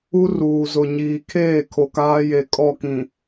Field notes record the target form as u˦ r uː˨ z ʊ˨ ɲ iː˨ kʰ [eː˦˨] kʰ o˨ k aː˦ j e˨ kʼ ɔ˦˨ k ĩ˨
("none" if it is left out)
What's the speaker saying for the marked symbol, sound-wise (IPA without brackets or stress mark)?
eː˦˨